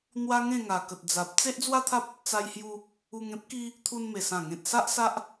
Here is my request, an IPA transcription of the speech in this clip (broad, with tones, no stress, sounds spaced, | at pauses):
n̪ w a˦ ŋ ẽ˥˧ ŋ a˨˩ k ə˨ t̚ d͡z a˨ p̚ t͡s e˦ ʔ d͡z w a˦ t̪ʰ a˦ p̚ | t͡s a˧ j h j u˧ | u˧ ŋ ẽ˦ p̚ k i˦ | t̪ʰ u˧ n m e˨˩ s ã˨˩ ŋ ẽ˨ t̚ s a˦ ʔ s a˦ ʔ